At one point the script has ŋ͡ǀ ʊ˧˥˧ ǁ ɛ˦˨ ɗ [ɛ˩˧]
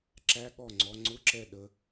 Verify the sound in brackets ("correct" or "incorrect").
incorrect